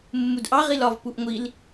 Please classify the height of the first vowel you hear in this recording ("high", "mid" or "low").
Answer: high